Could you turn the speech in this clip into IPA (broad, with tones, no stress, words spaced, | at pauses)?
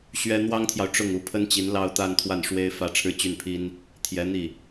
ɕɥɛ˥ n̪wɑ˥ŋt̪ʰjɑ˨ʊ̯ ʈ͡ʂʊ˥˩ŋu˧˥ pʰə˥nt͡ɕi˧˥n lɑ˥˧ʊ̯t̪a˥˧n t̪ʰwa˥˩nʂwe˥ɪ̯fä˥˧ ʈ͡ʂʰɻ̩˥˧t͡ɕy˥˩npʰi˥n | t̪ʰjɛ˧˥n̪i˥˩